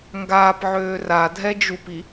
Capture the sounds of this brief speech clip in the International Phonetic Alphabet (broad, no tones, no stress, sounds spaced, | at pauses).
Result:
ŋ ɡ aː p ʕ øː r a dʱ ɛ d͡ʒ u p i